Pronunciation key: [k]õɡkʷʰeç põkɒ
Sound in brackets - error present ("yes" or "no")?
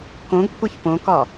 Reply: no